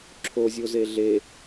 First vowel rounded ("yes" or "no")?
yes